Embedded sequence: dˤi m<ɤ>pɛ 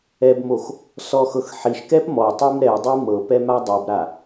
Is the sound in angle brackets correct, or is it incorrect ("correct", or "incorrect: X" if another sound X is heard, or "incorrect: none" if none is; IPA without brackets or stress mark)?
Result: correct